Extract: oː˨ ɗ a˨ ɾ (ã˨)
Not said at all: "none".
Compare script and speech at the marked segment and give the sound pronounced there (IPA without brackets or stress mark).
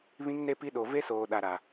a˨